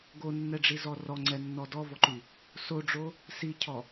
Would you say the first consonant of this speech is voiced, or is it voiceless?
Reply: voiced